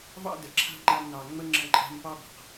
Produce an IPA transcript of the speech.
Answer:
v ɑ̰˦ d ə˨ ǁʰ a̤˦ ŋ͡ǃ a˦ m n ɑ˨ ŋ͡m ə˦ ŋ͡ǁ ə̃˦ ǃʼ a̤˦ m p ɑ˦ b a̤˨ q

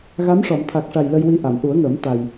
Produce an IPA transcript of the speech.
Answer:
ɣ a˧˥ m ʂ ɔ˨˩˨ m t̪ʰ a˨˩ k̚ ʂ a˨˩ j l ə˧ j w i˧ ʔ a˨˩˨ m ʔ u˨˩˦ ə̯ ŋ əː˨˩˦ m t̪ a˨˩ j

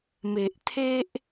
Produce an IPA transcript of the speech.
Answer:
m e˨ ʔ t̪ʰ e˦ ʔ

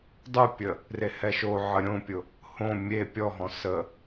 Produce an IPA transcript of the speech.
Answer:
dˤ u pʲ ə | r e h ɛ ʃ o ʕ ə ɾʲ õ pʲ ʊ | h õ mʲ e pʲ ɔ ɦ ɔ̃ s ə

